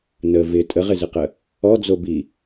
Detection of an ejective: present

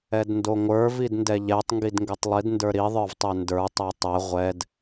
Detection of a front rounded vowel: absent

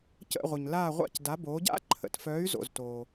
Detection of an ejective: absent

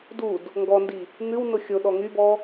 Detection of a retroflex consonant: absent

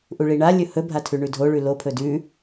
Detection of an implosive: absent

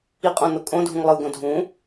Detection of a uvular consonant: present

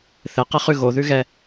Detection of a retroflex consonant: absent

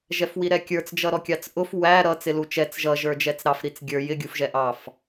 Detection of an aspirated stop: absent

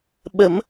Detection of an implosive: present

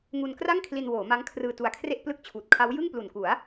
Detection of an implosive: absent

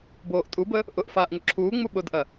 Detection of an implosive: present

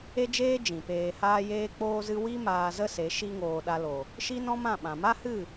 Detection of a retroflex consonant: absent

